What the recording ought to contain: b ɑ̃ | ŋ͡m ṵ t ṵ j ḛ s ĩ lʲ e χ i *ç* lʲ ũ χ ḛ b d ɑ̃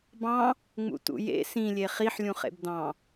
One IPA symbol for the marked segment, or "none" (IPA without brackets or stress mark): ħ